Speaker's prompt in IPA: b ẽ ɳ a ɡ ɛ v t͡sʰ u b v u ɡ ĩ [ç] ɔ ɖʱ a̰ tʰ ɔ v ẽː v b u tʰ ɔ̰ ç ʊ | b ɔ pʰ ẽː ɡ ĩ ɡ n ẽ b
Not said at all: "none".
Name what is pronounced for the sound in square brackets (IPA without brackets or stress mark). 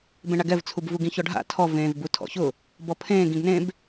ç